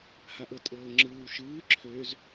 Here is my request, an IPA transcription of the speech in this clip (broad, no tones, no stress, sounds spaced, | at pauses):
h a ʔ ɤ tʼ ɤː ŋ͡ǁ ɯː w ʃ ɯː ǁʰ ø z